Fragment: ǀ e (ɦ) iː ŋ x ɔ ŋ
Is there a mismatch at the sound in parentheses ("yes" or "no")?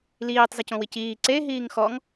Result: no